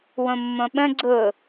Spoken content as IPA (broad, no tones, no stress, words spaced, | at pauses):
wõmːõɓə̃ ɡ͡ǀʊ